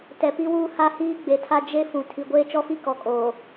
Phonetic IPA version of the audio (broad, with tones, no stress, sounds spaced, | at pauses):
t ɛ˨ p i˦ w uː˦ h a˦ h iː˦ ɡ͡b e˨ tʰ a˦ d͡ʒ e˦ f ũ˨ tʰ i˨ ɡʷ eː˦ t͡ʃ ɔ˦ f i˦ k ɔ˨ kʼ oː˨